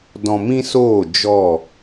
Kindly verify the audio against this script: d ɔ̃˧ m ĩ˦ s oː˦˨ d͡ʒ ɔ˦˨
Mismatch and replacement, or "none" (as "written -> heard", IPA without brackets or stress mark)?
none